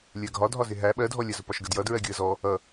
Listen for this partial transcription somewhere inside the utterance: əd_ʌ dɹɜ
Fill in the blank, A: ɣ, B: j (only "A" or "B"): B